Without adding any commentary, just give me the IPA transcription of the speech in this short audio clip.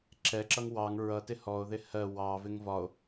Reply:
ǁ ɛ ǁ ʌ ŋ w ɑ ŋ ɹ ʌ t ɪ h ɔ o̯ ð ɪ h ɜ w ɑ v ɪ ŋ v ɒ o̯

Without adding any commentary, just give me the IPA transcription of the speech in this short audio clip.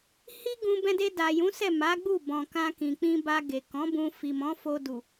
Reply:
h i˦ ɡ ũ˧ b ɛ̃˧ d e˧ d a˨ j ũ˨˦ s ɛ˦˨ m a˨˦ ɡ͡b u˦˨ b ɔ̃˨ k ã˧ k ĩ˨ k͡p ĩ˧ b a˧ ɡ e˨ k ɔ̃˨˦ b ũ˧ f i˨ m ɔ̃˨˦ f o˧ d u˨

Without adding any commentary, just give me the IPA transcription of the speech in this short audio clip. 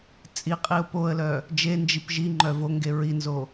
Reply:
t͡sʼ i qʼ i ʊ̯ p o ə̯ l œ | d͡ʒ e n d͡ʒ i p ʒ i ŋ͡ǃ œ v o ŋ ɡ e ɹ i n z o

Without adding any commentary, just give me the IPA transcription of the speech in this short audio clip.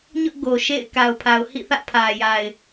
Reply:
ɲ ʊ˦ ʔ ɡ o˨ ʃ ḛ˦˨ ɪ̯ k a˨ ʊ̯ pʰ a˨ ʊ̯ h ḭ˦˨ θ ä̰˦˨ pʰ ä˨ j a˨ ɪ̯

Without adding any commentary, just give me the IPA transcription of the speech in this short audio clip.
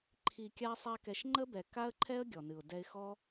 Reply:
ǃʰ i˧ kʲ a˦ sˤ a˦ k ɛ˧ ʃ ŋ͡ǃ ə˦ b ɛ˨ k a˦ ə̯ ǃʰ ɛ˦ ə̯ ɡʲ ɔ˨ n ɨ˨ ʊ̯ d ɛ˧ ɪ̯ x ɔ˦

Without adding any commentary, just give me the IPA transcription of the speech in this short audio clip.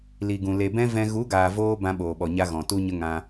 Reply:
l i˨ ɡ ũ˨ l e˨ b ɛ̃˦ v ɛ̃˧ ɣ u˨˦ ɡ aː˨ v oː˧ b ã˧ ɓ oː˨ ɓ ɔ˨ ɲ a˧ ɣ ɔ̃˨ t u˦ ɲ ə˦ ŋ ã˦

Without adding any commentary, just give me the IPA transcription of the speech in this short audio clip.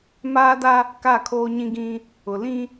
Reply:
m aː˦ d a˦ | k a˦˨ kʰ oː˦ ɲ ĩ˦ ɡ ĩ˦ | ʊ˨ l ĩ˦

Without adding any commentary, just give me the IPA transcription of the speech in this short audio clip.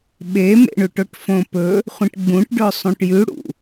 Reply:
ɓ e m ḛ ɳ ʉ ʈ o ʈ f õ p ɵ | χʷ ĩ ʈ ɡ͡b ũ ʈ ɖ ɵ sˤ ũ ʈ j ʉ ɽ ṵ

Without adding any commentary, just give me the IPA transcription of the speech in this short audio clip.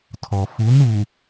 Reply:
tʰ ɔ˨ f u˨˦ n u˨

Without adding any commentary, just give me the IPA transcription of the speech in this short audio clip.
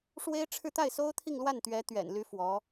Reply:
ʂ w e˥ ɪ̯ ʈ͡ʂʰ ɻ̩˥˧ t̪ a˥˩ ɪ̯ s o˥ ʊ̯ t̪ʰ i˥˧ ŋ l w a˥˩ n t̪ ɥ ɛ˧˥ t̪ ɥ ɛ̰˨˩ n l y˧˥ f w ɔ˧˥

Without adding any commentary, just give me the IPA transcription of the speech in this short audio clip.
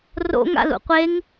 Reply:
r o̰ ŋ a̰ l ṵ qʷ e ŋ

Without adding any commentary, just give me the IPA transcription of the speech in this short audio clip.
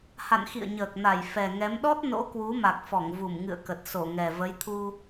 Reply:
h a̰˧˨ n x ḭ˧˨ ə̯ ɲ əː˨˩ k̚ n a˧˩ j f ɛ˨˩ ŋ ɛ˨˦ m ɗ ɔ˦˥ t̚ n o̰˧˥ k w u˨˦ m a˨˩ k̚ f ɔ˧˩ ŋ v u˧˩ m ŋ ɨ̰˧˨ ə̯ k ə˨˩ t̚ s o˧˩ ŋ ɛ˨˩ v ə˨˦ j t̪ʰ u˧

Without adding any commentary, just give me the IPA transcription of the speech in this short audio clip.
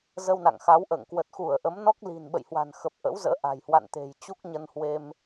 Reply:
z ə˧ w n a̰˧˨ ŋ x a˨˦ w ʔ ə̰ː˧˨ ŋ k w ə˨˩ t̚ x u˧˩ ə̯ ʔ ə˨˦ m n ɔ˦˥ k̚ l i̤˨˩ n ɓ ə̰˧˨ j h w a̤˨˩ n x ə˨˩ p̚ ʔ ə̰˧˥ w z ə̰ː˧˥ ʔ a̤˨˩ j h w a̰˧˨ n t̪ e̤˨˩ j t͡ɕ u˦˥ k̚ ɲ ə˧ n h w e˧ m

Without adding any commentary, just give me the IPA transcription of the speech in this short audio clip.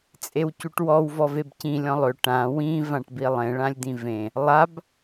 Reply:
t͡sʼ e w c u ʈ w ɔ w v ɔ v e b c ĩ lʲ ɔ̃ lˠ ø ʈ ã w ĩ v ã ʈ b i lˠ ẽ ɭ ã lʲ d̪ ĩ v ẽ | lˠ a b

